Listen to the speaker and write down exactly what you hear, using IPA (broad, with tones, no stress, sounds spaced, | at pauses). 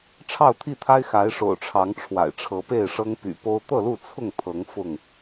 ʈ͡ʂʰ ɑ˥˨ ʊ̯ t̪ʰ i˥˨ t̪ʰ a˦ ɪ̯ x a˨˦ ɪ̯ ʂ o̰˨˩ ʊ̯ ʈ͡ʂʰ ɑ˨˦ ŋ ʈ͡ʂʰ w a̰˨˩ ɪ̯ ʈ͡ʂʰ ɤ˨˦ p e˥˨ ɪ̯ ʂ ɤ˦ ŋ p y̰˨˩ p o˦ ʊ̯ t̪ ɤ˥˨ l u˥˨ t͡sʰ ʊ˥˨ ŋ t̪ʰ ɤ˨˦ ŋ f ʊ˥˨ ŋ